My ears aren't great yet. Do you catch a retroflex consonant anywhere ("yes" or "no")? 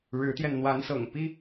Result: yes